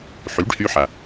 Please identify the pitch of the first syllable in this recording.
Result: rising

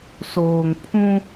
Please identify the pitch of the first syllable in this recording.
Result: low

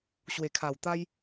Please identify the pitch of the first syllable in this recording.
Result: low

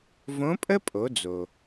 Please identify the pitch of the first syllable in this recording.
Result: rising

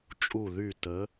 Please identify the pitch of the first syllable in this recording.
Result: falling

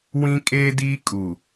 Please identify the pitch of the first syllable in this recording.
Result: high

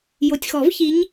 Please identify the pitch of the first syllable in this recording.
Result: low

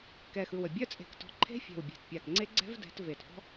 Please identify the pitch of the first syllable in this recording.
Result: low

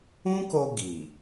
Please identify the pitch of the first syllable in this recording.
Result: high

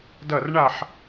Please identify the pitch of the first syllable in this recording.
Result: falling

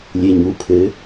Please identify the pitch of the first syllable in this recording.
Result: low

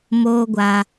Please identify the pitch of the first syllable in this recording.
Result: high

